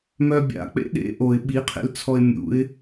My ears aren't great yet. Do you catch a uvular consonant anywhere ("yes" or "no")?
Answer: yes